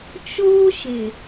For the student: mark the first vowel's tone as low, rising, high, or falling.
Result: high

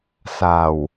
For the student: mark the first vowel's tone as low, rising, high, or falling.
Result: low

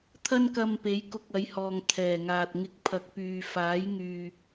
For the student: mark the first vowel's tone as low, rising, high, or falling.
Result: high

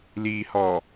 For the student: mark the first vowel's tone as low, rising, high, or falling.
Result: low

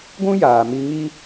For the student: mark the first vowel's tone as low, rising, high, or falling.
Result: high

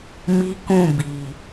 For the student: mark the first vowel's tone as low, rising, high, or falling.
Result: high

